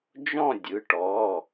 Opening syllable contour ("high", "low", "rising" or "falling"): falling